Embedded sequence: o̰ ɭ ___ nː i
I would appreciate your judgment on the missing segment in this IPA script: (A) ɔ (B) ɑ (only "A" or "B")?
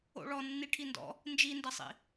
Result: A